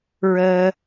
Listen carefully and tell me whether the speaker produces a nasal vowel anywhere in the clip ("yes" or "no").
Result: no